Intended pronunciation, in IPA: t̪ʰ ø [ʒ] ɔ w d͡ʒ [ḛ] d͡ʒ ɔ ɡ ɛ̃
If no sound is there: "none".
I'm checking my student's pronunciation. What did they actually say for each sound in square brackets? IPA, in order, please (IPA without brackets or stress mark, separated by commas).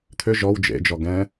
ʒ, ḛ